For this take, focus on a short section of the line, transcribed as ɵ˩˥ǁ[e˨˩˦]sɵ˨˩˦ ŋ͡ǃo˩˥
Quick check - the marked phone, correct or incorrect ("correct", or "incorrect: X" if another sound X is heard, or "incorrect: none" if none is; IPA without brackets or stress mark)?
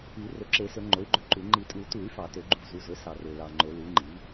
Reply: correct